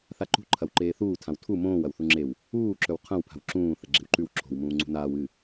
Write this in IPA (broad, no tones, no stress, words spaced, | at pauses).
θaǃṳ ǃʰɐwǃeːθuː tʰãwtʰu mõːwɐw θuŋ͡ǁew | uːǁɵw qʰɐ̃wpʰa̤w ǁũː θɐɡ͡ǁe̤wǃʉw ǁʰo̤wmũː ŋ͡ǀṳnaːw ɨ